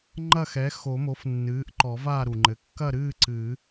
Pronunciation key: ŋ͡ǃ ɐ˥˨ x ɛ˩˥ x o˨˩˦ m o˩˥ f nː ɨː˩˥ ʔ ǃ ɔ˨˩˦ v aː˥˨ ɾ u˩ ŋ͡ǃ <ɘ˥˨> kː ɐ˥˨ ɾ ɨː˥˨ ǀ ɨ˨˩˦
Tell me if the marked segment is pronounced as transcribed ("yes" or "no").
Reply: no